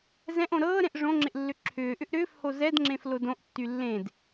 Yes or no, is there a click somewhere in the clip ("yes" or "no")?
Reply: yes